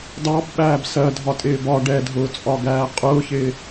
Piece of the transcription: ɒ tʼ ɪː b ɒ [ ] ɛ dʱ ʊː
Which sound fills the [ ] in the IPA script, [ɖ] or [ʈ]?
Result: ɖ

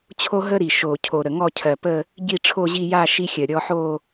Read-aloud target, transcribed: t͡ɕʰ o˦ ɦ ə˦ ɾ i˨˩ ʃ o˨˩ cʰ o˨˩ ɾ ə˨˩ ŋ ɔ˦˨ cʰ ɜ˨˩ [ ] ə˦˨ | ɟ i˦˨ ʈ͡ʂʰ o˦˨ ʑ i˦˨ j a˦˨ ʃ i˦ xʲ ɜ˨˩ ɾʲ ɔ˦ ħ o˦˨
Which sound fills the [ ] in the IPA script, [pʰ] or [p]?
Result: p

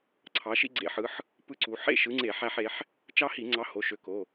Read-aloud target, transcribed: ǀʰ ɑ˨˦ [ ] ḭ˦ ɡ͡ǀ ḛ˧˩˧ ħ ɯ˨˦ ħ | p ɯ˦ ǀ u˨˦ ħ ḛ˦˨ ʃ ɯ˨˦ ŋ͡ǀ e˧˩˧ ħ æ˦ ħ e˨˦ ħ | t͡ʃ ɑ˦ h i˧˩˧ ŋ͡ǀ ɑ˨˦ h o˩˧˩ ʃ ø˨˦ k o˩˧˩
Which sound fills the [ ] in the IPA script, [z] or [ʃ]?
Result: ʃ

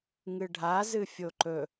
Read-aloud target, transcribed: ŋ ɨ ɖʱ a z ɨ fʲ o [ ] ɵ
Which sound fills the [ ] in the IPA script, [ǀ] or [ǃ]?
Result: ǃ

